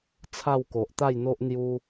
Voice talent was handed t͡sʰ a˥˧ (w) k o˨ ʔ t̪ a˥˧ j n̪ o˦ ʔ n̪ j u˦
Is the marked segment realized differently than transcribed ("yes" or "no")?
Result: no